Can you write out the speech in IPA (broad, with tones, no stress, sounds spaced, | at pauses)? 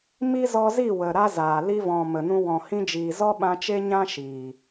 m i˦ z ɔ˧ z i˦˨ w ə˨ ɾ a˦ z aː˨ l i˧ v ɔ̃˨ m ə˨ n ũ˧ w ɔ̃˨ h ĩ˧ d͡ʒ iː˨ z ɔ˦ ɓ ã˧ t͡ʃ e˦ ɲ ã˦ ʃ iː˨